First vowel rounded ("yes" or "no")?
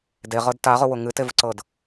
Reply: no